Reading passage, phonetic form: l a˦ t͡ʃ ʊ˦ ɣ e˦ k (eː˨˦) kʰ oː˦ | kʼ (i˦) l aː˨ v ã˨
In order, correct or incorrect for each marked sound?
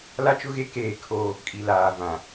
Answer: incorrect: eː˦˨, incorrect: i˨

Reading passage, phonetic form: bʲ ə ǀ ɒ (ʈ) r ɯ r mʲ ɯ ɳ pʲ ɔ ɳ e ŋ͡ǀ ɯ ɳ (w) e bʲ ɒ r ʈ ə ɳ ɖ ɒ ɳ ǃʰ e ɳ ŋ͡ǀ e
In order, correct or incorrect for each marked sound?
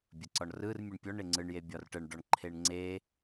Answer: incorrect: ɳ, incorrect: j

